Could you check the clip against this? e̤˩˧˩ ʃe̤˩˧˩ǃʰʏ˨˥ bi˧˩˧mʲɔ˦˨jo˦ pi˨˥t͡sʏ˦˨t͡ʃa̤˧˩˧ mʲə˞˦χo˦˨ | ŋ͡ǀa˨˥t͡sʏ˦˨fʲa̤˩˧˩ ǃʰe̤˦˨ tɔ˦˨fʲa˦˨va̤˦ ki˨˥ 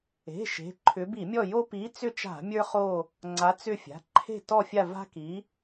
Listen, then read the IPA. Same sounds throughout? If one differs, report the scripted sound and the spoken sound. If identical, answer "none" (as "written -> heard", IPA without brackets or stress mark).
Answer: none